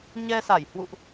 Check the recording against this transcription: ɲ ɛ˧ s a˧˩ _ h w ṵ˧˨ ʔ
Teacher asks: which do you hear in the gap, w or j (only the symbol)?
j